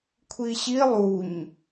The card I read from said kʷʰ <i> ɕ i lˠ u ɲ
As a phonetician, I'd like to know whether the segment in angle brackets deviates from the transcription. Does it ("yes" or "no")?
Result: no